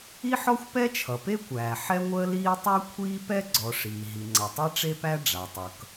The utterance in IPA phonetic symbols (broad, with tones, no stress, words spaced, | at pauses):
i˥ħɔ˥xʷ pɛ˥t͡ʃʰʌ˩pe˥kʷæː˩ ħɛ˥ŋʷəː˥liː˥ tˤæ˥ kʷʰiː˥pɛ˥ ɡ͡ǀɔ˩ ʂiː˩ɦi˩ŋ͡ǀʌ˩tˤɛ˥ ʈ͡ʂe˥pæ˥ ɖ͡ʐa˩tˤʌ˩k